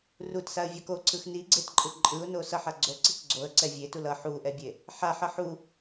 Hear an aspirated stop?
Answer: no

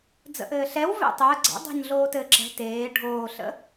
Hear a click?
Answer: yes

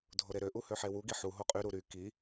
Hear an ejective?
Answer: yes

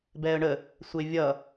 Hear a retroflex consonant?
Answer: yes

